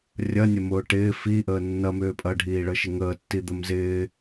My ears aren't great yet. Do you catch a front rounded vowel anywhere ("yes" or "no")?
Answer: yes